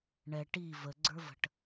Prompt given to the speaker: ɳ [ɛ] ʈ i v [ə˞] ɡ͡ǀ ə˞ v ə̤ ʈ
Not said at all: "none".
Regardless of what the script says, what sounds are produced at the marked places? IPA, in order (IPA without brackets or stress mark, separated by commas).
ɛ, ə